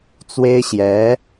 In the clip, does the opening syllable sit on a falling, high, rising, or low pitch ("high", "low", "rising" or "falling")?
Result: high